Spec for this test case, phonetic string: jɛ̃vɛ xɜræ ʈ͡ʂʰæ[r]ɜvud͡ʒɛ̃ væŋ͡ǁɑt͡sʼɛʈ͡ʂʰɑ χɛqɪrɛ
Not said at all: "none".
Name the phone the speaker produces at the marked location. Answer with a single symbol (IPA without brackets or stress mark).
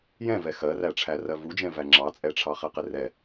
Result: r